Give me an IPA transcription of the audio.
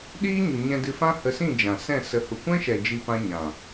ɗ iː˦ ɲ u˨ ɲ ɛ̃˧ d ɨ˧ f ã˦ h ə˧ s ĩ˦˨ d͡ʒ ã˨ s ɛ̃˦˨ s ə˨˦ h u˨ kʷ ɛ̃˦ ʃ ɛ˨ d͡ʒ i˦ p ã˦ ɲ ã˨

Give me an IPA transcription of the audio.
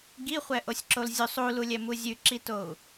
ɡ i χʷ ɛ ʔ o sʲ ǁ o l zʲ u sˤ u l u lʲ ɛ m u zʲ ʉ ǁ i t o u̯

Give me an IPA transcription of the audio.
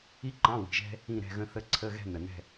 i˥ ǃ ɑ̃˧˥˧ w i̤˨ ʒ ɛ̤˥ | ĩ˥˧ ɾ ɛ̤˥˧ ɣ ə̃˥ θ ə˥˧ ǀʰ ə˧˥˧ ɣ ɛ̤˥˧ n ə˨ n ɛ̤˥˧

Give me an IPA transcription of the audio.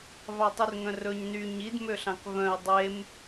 v ɑ tˤ y r ŋ œ̃ r ɵ ɲ n y ɲ i d m ø ɬ ɑ̃ k v œ̃ y̯ dˤ e m

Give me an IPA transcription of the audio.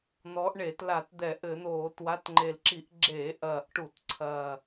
n̪ ɔ˨˦ ʔ ɳ e˧˩˧ t l a˧˩˧ t d̪ ɛ˧˩˧ ʔ ɘ˧˩˧ n̪ oː˧˩˧ t w a˨˦ t ŋ͡ǃ e˨˩ l ǁ i˧˩˧ ʔ ɡ͡ǁ eː˧˩˧ ʔ ɐː˨˩ ʔ ʈ u˧˩˧ t ǀʰ ɐ˨˩

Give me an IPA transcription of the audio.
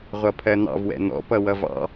ʁʷ ʌ pʰ ɜ n̪ ɑ̰ v w ɛ̰ n̪ ɔ̰ p ʌ w ʌ v ɑ̰

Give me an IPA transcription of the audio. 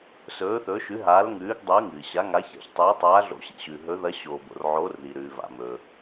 s ɵː˨˦ θ ɵː˨˦ ʃ ʉ˨˦ ɦ aː˨˦ l ŋ ʉː˨˦ ɡ dˤ ʉː˨˦ ŋ ɨː˩ ɕ a˨˦ ŋ a˨˦ ç a̰˨˦ ç tˤ ɨː˨˦ tˤ aː˨˦ ɮ o̰˨˦ ɕ ḭ˩ ɕ ʉ˩ ɦ ɵ˨˦ ð ɐ˨˦ ɕ oː˩ b o̰˩ r ʕ oː˨˦ r ð i˩ ɾ ʉː˩ v a̰˩ m ɵː˩

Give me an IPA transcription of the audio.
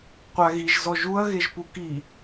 qʷ a ɣ i ʒ z ɔ ʒ u ɐ̯ ɣ e ʒ p u k i

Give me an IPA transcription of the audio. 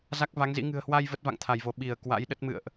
z a˦˥ k̚ v a˨˦ ŋ z ḭ˧˥ ŋ ɨ̤˨˩ ə̯ h w a˧ j v ə˦˥ t̚ v a̰˧˨ ŋ t̪ʰ a˧˩ j v o˧˩ ɓ i˧˩ ə̯ k w a̰˧˥ j ɗ ə˦˥ t̚ m ɨ̰˧˨ ə̯ ʔ

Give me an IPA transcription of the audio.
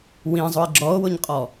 w ĩ zˤ ʊ e̯ ɡ͡ǁ ɔ o̯ w ʊ ɲ qʼ ɔ

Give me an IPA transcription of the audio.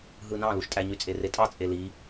ɦ ɯ n ɑ̃ l u ʃ tʼ æ ɲ y t͡sʼ e r e tʼ ɑ t͡sʼ e l i

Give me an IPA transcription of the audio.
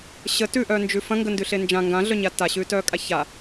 ɕ ə t ʉ ʔ œ n d͡ʒ ʉ f ɐ̃ ŋ ɡ ə n d ʉ ɬ e n d͡ʒ ã ŋ ɡ ã ɮ œ ɲ a t a ɕ ʉː t œː kʼ a ç a

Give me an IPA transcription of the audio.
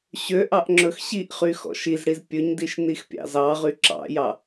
ɕ ø ʔ ɑ ʔ ŋ͡ǁ ɵ x ɕ i ʔ χ y x ɔ̰ ʃ i z ɽ i z pʲ ɵ ɲ d i ʃ n i x pʲ ɑ̰ z ɑ ʁ y ǁ ɑ̰ j ɑ

